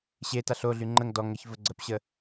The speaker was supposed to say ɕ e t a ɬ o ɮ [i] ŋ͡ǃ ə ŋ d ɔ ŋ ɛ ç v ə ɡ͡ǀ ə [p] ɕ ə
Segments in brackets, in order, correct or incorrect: incorrect: y, correct

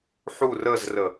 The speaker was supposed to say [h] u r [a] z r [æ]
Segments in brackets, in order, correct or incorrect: incorrect: ħ, incorrect: ə, incorrect: ə

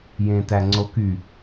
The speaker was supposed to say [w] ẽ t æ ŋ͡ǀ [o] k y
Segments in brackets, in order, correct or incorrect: incorrect: j, correct

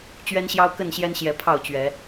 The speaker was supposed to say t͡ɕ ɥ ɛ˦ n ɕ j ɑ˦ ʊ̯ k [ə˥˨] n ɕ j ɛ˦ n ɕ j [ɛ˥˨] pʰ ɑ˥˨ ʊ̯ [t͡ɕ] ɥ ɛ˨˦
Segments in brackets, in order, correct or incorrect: correct, incorrect: ɛ˨˦, correct

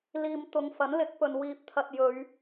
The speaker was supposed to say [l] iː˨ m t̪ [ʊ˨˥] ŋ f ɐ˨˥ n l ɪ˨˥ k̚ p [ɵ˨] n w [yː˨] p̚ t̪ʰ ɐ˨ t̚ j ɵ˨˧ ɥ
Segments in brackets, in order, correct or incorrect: correct, incorrect: ʊ˨˧, correct, incorrect: iː˨

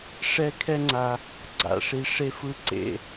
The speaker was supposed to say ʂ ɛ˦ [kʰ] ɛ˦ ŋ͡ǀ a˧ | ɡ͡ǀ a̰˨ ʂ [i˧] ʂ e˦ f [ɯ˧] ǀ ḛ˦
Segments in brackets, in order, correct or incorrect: correct, correct, incorrect: ɯ˦

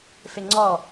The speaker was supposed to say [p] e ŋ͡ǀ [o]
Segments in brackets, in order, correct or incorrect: incorrect: f, incorrect: ɔ

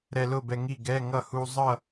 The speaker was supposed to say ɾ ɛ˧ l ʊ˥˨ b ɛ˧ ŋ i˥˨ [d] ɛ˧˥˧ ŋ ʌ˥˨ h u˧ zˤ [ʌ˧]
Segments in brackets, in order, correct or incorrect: incorrect: ɡ, incorrect: ʌ˥˨

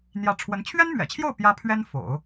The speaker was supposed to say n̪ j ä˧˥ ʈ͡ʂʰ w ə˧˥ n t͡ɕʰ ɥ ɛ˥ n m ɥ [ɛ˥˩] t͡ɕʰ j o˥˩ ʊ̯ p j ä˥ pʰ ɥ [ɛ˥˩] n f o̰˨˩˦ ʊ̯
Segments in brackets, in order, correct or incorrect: incorrect: ɛ̰˨˩, incorrect: ɛ˥

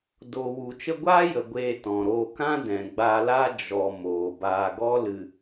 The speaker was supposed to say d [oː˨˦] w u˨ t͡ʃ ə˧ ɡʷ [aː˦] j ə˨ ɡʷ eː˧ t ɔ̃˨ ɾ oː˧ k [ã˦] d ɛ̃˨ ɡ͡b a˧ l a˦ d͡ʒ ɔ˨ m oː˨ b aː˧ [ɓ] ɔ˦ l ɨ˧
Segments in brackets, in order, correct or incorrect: incorrect: oː˨, correct, correct, incorrect: ɡ

